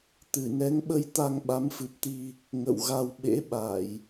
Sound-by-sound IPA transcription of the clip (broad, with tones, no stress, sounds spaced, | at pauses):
t̪ ɨ˧˩ n ɛ˨˦ ŋ ɓ ə˧ j t̪ a˧ ŋ ɓ a˨˦ m f ɨ˨˩ p̚ t̪ i˧ | ŋ ə̰˧˨ w ɣ a˧ w ɓ ḛ˧˥ ɓ a˧˩˨ j